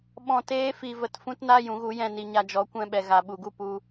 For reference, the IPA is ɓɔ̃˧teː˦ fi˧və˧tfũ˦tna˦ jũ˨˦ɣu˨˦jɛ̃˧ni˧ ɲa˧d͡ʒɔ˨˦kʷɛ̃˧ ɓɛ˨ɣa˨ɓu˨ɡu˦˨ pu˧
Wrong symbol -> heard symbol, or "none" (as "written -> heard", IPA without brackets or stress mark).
none